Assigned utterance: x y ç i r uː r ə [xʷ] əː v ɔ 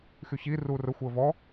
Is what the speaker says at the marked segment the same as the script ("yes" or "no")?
yes